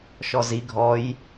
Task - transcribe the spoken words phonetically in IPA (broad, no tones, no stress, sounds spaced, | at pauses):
ʃ ɔ z i ɡʱ ɔ j